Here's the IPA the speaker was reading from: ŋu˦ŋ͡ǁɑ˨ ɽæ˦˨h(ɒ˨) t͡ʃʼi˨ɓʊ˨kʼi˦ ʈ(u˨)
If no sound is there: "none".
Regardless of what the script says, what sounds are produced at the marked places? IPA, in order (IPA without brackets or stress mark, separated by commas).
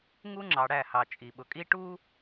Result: ɑ˨, u˦